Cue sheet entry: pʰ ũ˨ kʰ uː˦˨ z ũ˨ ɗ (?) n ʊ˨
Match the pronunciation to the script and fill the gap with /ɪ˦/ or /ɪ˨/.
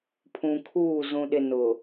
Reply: ɪ˨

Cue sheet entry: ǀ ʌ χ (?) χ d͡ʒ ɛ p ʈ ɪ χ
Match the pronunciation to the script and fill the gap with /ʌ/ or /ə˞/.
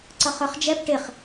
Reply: ə˞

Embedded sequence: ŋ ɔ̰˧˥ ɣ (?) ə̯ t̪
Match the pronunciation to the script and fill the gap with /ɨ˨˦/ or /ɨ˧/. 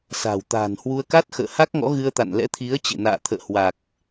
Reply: ɨ˧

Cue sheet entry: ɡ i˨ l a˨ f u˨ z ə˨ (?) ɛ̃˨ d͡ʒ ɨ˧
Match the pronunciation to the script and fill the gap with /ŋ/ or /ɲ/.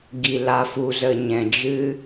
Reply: ɲ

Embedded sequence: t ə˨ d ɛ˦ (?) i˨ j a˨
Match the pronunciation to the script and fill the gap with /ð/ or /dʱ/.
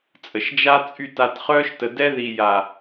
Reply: ð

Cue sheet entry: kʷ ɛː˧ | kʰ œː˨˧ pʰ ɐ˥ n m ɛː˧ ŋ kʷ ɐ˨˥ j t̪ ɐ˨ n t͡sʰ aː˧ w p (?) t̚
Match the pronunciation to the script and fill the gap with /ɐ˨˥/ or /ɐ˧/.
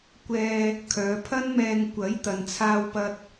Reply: ɐ˧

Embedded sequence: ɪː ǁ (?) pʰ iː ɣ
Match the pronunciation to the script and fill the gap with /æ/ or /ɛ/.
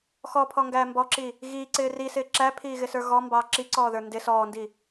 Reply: æ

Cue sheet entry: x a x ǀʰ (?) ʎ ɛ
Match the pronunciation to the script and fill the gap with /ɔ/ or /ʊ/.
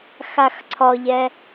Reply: ɔ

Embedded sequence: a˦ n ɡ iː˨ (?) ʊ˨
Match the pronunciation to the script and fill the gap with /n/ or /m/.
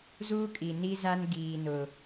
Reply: n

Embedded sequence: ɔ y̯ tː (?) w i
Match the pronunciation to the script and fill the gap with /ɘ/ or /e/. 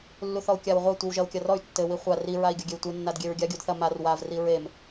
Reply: ɘ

